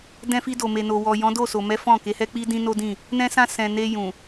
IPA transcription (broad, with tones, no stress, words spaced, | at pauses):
dɛ̃˧fi˧do˨ me˨no˨wɔ˨ jɔ̃˨˦do˦˨so˨mɛ˨˦ fɔ̃˦˨ ke˨˦hɛ˦k͡pi˦dĩ˦ no˦dĩ˦˨ | nɛ̃˧sã˧ sɛ̃˨ne˧ jũ˨